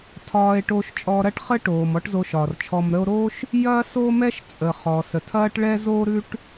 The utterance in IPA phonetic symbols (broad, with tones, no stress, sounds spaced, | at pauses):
tʰ ɒː˧ e̯ ʈ oː˧ ʃ t͡ʃʼ ɔ˧ ɾ ɐ˥ ʈ χ ə˥ ʈ oː˩ m ɔ˥ ʈ z o˧ ʃ ɒː˩ r t͡ʃʰ ɔ˧ m ɾ ə˥ o̯ ɾ oː˥ ʃ | j ɐː˥ s o˥ m ɛ˥ ʃ t͡sʼ ə˩ χ ɔː˩ s ə˩ tʰ ɐː˥ ʈ ɭ ɛ˥ z oː˥ ɾ ʉ˥ ʈ